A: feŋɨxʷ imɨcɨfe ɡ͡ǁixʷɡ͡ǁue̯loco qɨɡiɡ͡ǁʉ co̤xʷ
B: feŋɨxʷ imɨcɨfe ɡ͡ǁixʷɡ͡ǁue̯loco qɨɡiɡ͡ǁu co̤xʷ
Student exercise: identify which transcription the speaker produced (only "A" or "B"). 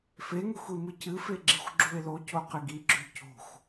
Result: A